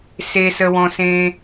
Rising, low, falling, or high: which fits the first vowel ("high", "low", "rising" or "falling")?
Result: low